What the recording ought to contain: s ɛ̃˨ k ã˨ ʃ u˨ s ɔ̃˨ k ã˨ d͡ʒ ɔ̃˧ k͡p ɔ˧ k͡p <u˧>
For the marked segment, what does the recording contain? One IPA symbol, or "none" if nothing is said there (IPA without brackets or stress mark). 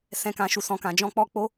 o˧